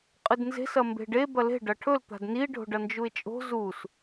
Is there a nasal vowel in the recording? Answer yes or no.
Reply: no